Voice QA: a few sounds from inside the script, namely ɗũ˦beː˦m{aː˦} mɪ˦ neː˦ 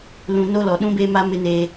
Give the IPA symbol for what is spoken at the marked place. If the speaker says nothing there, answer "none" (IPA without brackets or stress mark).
a˦